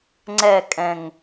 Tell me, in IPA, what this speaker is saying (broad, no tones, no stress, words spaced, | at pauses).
ŋ͡ǀɛkʼɛ̃ŋ